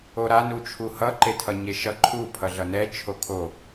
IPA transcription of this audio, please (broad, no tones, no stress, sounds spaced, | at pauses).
o ɾ a n u t͡ʃʰ u h ʌ ǃ e tʰ ʌ ɲ e ʃ ʌ ǃʰ u pʰ ʌ ɮ ʌ n ɛ t͡ʃʰ o kʰ o